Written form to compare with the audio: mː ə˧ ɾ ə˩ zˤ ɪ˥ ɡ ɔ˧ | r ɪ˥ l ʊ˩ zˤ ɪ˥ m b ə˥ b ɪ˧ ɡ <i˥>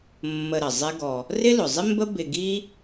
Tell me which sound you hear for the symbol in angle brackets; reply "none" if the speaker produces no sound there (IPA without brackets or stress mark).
i˥